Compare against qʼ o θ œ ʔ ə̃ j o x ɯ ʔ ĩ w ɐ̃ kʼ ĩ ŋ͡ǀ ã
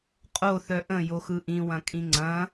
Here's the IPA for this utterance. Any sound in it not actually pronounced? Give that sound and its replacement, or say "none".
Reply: ã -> ɐ̃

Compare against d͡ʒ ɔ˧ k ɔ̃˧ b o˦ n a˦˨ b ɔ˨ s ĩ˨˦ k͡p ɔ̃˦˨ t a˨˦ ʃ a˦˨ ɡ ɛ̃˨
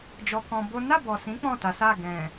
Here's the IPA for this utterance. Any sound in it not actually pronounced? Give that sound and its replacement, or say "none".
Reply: ʃ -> s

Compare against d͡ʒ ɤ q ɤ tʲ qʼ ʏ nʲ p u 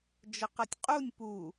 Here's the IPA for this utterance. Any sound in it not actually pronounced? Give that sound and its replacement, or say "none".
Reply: ʏ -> u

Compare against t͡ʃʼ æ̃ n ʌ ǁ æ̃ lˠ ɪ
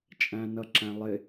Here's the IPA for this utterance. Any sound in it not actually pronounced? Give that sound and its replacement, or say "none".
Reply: none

